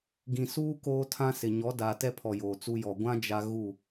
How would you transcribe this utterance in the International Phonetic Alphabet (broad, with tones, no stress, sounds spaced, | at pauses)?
ɡ ĩ˨ s uː˦ k oː˦ tʰ ã˦ s ɪ˨ ɲ ɔ˨˦ d a˨ t ɛ˦ pʰ ɔ˨ j oː˨ t͡s u˦ j ɔ˨ ɡʷ ã˦ d͡ʒ a˦ ɣ u˦˨